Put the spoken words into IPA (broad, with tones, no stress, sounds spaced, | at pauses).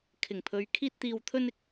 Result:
kʰ ɪ˨˩ ŋ pʰ ɵ˨˧ ɥ kʰ iː˧ t̚ t̪ iː˨ w t̪ʰ ɵ˧ n ɪ˥ k̚